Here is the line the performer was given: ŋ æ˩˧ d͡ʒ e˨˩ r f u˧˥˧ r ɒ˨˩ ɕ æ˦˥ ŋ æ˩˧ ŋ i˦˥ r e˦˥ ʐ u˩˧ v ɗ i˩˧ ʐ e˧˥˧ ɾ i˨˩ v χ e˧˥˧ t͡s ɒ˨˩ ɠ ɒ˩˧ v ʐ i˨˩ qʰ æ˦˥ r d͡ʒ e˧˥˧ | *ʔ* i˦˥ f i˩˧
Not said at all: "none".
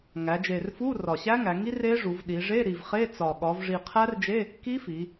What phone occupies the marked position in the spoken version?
k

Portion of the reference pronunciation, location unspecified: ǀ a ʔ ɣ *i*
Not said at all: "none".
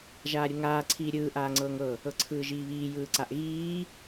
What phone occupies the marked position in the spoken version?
iː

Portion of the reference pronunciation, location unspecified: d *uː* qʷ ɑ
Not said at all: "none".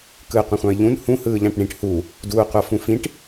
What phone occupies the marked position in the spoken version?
uː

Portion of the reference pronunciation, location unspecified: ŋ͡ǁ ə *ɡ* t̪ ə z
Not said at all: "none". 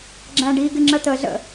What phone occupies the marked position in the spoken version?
none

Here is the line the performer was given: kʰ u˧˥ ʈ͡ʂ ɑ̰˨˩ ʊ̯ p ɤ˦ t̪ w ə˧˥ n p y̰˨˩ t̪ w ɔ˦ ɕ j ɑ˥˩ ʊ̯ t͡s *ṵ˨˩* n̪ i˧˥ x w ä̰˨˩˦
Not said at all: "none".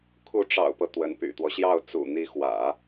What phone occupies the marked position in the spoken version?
ṵ˨˩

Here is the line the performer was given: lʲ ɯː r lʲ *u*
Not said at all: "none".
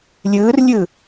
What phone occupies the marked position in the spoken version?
ɯ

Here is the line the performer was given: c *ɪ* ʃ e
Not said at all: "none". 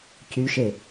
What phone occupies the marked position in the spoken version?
y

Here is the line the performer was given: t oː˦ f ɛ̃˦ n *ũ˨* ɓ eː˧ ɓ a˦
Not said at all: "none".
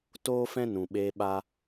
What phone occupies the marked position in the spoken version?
ũ˨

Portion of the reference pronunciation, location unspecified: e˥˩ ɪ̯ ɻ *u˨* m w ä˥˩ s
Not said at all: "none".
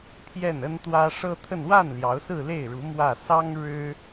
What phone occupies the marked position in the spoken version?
u˧˥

